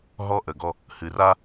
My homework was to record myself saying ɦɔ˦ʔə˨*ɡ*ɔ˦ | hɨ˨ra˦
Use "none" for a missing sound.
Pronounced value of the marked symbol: ɡ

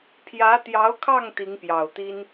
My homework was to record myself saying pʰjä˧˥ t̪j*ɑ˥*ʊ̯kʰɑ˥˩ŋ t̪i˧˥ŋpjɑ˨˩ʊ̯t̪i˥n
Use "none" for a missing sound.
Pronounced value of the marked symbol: ɑ˧˥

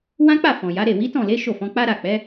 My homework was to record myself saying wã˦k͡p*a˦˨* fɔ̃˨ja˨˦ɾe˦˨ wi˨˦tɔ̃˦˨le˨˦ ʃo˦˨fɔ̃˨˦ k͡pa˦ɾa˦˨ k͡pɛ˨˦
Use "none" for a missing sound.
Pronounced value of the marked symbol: a˦˨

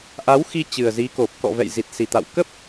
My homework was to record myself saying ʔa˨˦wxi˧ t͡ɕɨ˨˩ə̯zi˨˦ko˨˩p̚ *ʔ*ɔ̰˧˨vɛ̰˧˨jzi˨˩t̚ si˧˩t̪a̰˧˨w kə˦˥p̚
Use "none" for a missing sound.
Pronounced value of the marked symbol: k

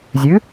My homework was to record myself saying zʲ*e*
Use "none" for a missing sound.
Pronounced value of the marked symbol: ɨ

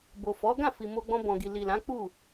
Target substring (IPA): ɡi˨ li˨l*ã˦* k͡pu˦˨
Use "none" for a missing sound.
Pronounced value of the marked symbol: ã˨˦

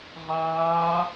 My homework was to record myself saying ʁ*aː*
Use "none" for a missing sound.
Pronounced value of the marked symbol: aː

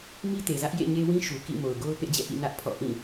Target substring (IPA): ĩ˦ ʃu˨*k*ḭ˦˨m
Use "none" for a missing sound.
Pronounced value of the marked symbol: k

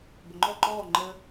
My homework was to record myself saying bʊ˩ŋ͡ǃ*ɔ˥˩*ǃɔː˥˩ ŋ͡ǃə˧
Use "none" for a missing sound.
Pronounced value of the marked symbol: ɔ˥˩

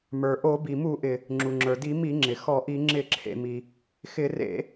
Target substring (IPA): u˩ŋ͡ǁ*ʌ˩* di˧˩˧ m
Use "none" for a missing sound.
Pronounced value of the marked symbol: ə˞˩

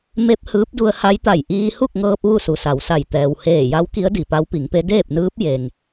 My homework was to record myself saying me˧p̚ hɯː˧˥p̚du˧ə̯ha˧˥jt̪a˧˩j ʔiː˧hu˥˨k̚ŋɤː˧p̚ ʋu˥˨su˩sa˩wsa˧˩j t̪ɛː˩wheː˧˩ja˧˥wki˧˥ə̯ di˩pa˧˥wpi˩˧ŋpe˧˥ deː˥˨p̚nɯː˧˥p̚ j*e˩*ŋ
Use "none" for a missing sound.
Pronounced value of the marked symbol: e˩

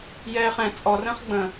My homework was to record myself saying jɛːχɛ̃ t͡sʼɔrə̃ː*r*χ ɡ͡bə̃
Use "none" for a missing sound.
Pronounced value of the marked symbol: none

